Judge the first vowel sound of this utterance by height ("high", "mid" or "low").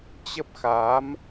mid